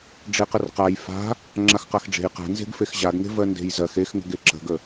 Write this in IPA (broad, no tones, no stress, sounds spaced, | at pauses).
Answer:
ɖ͡ʐ e q ə r q a j f a̤ | ŋ͡ǁ a x q a x ɖ͡ʐ e̤ j q a̤ n z e̤ ɡ f e x ʑ a ɡ ŋ e̤ v ɜ n d e̤ j z ɜ x e x ŋ ə̤ ɡ e ǁ ə̤ ɡ ə